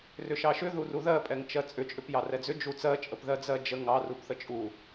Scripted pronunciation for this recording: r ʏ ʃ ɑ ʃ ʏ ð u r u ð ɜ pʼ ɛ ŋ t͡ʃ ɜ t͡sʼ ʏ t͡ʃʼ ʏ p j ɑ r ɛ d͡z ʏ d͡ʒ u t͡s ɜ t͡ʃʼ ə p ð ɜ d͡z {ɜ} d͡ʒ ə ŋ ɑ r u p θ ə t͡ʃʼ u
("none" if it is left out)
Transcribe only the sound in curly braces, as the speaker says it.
ɜ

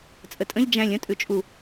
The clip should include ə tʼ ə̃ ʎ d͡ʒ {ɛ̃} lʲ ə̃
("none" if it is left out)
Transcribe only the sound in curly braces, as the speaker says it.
æ̃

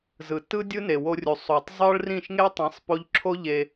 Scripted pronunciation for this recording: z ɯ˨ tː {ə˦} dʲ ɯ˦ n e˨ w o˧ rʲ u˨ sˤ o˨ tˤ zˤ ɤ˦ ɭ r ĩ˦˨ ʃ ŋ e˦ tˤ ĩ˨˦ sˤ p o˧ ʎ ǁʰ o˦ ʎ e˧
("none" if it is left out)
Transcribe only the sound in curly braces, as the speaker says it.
ɯ˦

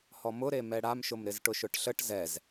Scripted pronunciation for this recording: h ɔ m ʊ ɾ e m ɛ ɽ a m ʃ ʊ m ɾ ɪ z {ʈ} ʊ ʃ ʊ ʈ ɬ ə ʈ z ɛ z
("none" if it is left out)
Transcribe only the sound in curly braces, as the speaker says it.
ʈ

